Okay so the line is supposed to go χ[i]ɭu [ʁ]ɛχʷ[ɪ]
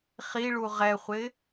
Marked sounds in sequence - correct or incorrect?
correct, correct, correct

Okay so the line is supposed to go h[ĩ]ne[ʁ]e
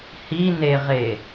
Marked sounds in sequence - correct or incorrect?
incorrect, correct

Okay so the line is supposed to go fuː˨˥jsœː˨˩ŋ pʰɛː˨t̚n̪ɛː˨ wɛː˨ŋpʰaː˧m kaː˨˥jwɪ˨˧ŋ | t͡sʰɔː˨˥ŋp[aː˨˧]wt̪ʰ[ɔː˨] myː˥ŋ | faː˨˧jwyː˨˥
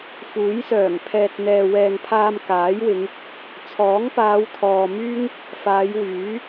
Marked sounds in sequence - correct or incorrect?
correct, correct

